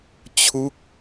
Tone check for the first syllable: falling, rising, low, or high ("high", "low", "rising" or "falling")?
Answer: falling